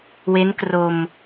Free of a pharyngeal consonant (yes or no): yes